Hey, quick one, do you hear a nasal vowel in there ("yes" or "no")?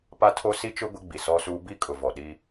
no